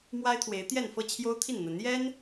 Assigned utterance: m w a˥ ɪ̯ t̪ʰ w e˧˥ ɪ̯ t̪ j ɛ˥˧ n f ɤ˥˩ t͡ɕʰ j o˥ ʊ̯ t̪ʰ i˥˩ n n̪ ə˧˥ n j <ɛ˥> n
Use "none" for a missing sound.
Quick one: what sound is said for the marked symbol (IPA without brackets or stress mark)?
ɛ˥